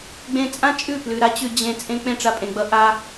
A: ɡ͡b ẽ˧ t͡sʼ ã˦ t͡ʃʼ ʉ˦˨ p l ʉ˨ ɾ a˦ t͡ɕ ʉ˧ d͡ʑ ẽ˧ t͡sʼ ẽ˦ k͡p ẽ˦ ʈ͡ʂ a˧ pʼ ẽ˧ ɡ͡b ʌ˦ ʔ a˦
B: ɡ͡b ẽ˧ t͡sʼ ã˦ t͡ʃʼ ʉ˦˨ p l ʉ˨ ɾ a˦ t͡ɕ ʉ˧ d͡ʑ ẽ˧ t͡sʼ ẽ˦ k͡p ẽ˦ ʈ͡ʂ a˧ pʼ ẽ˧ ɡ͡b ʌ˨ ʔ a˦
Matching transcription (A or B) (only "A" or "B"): A